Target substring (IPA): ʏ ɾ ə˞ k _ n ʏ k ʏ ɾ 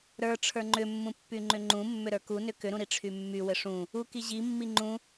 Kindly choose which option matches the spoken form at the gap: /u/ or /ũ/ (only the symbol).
u